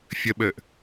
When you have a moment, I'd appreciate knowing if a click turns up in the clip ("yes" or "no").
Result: no